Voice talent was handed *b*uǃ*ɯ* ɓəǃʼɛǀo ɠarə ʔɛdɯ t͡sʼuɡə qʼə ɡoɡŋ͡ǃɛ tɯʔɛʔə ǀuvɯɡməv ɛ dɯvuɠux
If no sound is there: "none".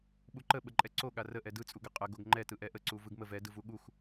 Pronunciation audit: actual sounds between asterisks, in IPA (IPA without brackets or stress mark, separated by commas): ɓ, ə